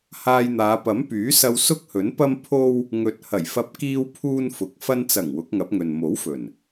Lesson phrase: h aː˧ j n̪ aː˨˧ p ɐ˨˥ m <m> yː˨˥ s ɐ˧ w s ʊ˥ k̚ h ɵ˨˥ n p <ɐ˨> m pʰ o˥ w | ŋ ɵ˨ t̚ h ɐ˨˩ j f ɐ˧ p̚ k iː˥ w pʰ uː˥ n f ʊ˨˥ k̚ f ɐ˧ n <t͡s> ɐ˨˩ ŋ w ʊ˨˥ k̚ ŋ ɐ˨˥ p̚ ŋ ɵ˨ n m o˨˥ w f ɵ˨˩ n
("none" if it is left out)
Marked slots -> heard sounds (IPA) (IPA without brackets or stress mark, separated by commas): p, ɐ˥, t͡s